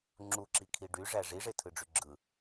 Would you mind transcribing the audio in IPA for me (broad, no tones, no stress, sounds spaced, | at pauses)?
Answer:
ŋ͡ǁ u ǁ i kʰ i ɖ y ʐ æ ʐ i ʐ e tʰ ɯ ɖ͡ʐ y ɡ͡ǁ ɯ